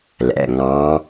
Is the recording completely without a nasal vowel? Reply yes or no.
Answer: no